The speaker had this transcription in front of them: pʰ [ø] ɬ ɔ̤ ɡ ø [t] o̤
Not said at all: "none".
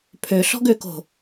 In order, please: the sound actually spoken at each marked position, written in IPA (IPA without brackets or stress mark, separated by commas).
ø, k